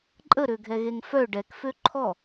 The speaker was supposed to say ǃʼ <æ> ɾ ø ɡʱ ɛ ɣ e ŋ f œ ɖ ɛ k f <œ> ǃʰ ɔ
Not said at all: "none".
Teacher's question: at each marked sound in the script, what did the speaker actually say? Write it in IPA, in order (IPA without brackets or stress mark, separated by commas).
ə, ø